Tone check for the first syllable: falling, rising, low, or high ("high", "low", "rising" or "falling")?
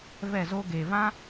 falling